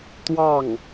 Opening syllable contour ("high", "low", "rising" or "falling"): falling